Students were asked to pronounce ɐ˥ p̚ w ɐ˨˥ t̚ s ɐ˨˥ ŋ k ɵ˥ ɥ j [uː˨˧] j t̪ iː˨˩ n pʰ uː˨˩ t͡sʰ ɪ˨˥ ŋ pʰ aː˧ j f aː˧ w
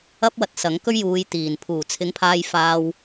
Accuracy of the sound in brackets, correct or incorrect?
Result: correct